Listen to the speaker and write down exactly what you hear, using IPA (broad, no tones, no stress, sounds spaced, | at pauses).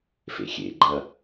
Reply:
f ḛ xʲ ḛ ɡ͡ǃ ɐ